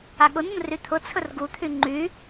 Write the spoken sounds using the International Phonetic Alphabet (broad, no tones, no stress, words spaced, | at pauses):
aɠʊnʊn ryt̪ʰʊt͡sʰɵr ɡut̪ʰy ŋ͡ǃy